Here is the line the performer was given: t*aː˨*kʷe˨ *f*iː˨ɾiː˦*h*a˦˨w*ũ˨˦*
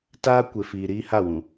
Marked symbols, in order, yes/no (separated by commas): no, yes, yes, no